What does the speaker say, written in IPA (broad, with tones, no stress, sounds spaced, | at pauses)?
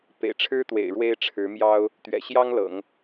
p ḛ˨˩ ɪ̯ ʈ͡ʂʰ ɻ̩˥ t̪ w ḛ˨˩ ɪ̯ ɻ w e˥ ɪ̯ ʈ͡ʂʰ ɻ̩˧˥ m j ɑ˥ ʊ̯ | t̪ ɥ ɛ̰˨˩ ɕ j ɑ˥ ŋ l ɤ̰˨˩˦ ŋ